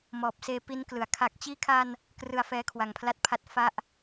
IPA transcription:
m ɔː˨˩ p̚ s eː˧ p i˦˥ n k l ɯ˩˦ a̯ kʰ a˨˩ k̚ t͡ɕ iː˧ kʰ a˧ n | k r ɯ˧ a̯ f ɛː˦˥ kʰ w a˨˩ ŋ pʰ l a˦˥ t̚ pʰ a˥˩ t̚ f a˥˩ ʔ

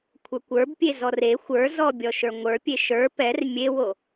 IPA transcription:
kʷʰ ə˞ kʷ ə˞ b pʲ e z ɔ r e xʷ ə˞ z ɔ bʲ ɔ ʃ ə˞ ŋʷ ə˞ pʲ e ʃ ə˞ p ɛ r mʲ e w o

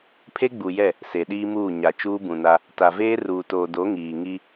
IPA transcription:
pʰ e˦ ɡ͡b u˨ j ɛ˦˨ | s e˨ ɗ iː˦ m uː˦˨ ɲ a˨ t͡ʃ uː˦ b ũ˨ n a˦ | t a˨ v eː˦ r uː˨ t oː˨ d o˨˦ ŋ iː˨ ŋ i˦

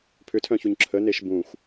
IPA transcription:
pʰ ʏ tʰ œ̃ ç u ɲ ǁʰ ə n e ʃ b ũ xʷ

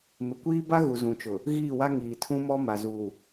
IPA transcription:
m ɪ˨ kʷ iː˦ b a˦ ɣ u˨ z ũ˨ t͡ʃ ʊ˨ | ɣ iː˦˨ w a˦ ŋ iː˨ tʰ ũ˦ m ɔ˦ m a˨ z u˨

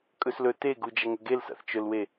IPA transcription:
kʼ ɵ s l ɵ t e ɡ u d͡ʒ ɐ ŋ ɵ ɡ e l s a̰ θ t͡ʃ ɵ l w e

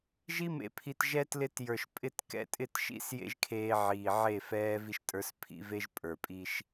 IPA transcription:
ʒ i˦ m ḛ˨ pʰ i˨ t ʒ ɛ˦ t l ɪ˦ t j ə˞˨ ʃ pʼ ɪ˦ t k ɛ̰˦ tʼ ɪ˦˨ t ʃ ḭ˦ s j ḛ˦ ʒ kʰ eː˦ ʕ iː˨ ʕ e˦˨ f ɛː˦ v i˦ ʃ tʼ ə˞˦ s pʰ ḭ˦ v e˦ ʒ pʼ ə˞˨ pʼ i˦ ʃ

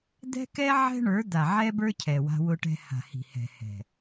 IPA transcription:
d̪ ɛ̤˦ k ɛ˦ ʕ ɛ̤˦ ɳ ə˞˨˦ d̪ a˨ ʕ ɛ˦ b ə˞˦ cʰ ɛ˨ w a̤˦ w ʊ˦ ʈ ɛ̤˦ h a̤˨ h i̤˨ h ɛ̤˨ h ɛ̤˨

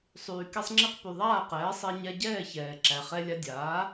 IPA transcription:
sˤ yː˩ k ɛ˧ sˤ ŋ͡ǁ i˧ q p y˩ ðˤ aː˥˩ q ɛː˩˥ sˤ e˧ ɲ ɛ˧ ɟ ɛː˥˩ ç ɛː˩ ǁ æ˩ χ ɛ˧ lʲ a˧ dʲ aː˩˥

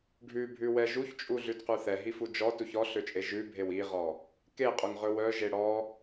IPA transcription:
ɖʱ ʉ bʱ ʉ w ɛ ʒ u ç t͡ʃʼ u ɮ ʉ d q ʉ θ ɛ ɦ i f u d͡ʒ ɔ t u ç ɔ ɬ ø t͡ʃʼ e ʒ ʉ bʱ e w i ʁ ɔ | k e qʼ ɵ ŋ ʁ ɵ w œ ʒ e ɽ ɔ

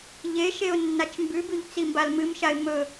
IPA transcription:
ʎ e ʃ e ʊ̯ nː a t͡ʃ m b ʉ b ʉ ʎ t͡s i m b a l m ɨ m ʃ a ɪ̯ m ɵ

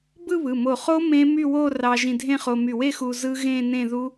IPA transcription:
b ɯ˥˧ β ɯ˩˧˩ m o˧˩ χ o˦˥ m ẽ˦˥ m y˥˧ w o˥˧ r ɑ˧ ʒ ĩ˧ dʱ ẽ˥˧ χ o˧ m y˧˩ w e˥˧ x u˧ z ɯ˦˥ ɣ ẽ˥˧ n ẽ˥˧ ð u˦˥

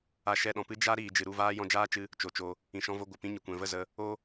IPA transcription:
a˧ ʃ ɛ˧ ɗ ɔ̃˨ p ɨ˦ d͡ʒ a˦ ɾ iː˨ d͡ʒ ɨ˨ ɾ u˦˨ v aː˦ j ɔ̃˧ d͡ʒ aː˦ t͡ʃ ɨ˧ | t͡ʃ o˨ t͡ʃ o˧ | ĩ˨ ʃ ɔ̃˧ v o˧ ɡʷ ə˨ p ĩ˧ ɲ ə˨ kʷ ɛ̃˨ v ə˦˨ z ə˧ | o˦

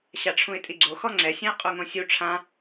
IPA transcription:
ɕ a ʈ͡ʂʰ ũ ɪ̯ tʼ i ɡ͡ǀ o x ɔ ŋ͡ǀ ɛ sʲ ɛ̃ ɪ̯ qʼ u ŋ õ sʲ u ʈ͡ʂʰ ã

